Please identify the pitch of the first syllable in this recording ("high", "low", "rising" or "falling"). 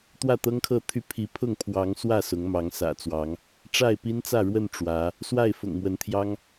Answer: falling